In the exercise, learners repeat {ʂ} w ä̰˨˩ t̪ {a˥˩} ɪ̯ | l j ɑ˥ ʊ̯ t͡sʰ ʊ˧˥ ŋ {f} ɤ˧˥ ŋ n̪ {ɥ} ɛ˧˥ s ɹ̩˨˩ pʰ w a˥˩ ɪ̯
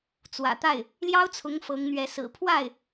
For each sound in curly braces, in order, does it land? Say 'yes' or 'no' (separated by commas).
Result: no, yes, yes, yes